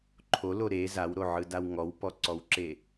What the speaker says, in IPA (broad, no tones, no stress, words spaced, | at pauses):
ǃʰolo ɾe zawɾoʕɯdaw ŋɔwpɔǀɔwǁe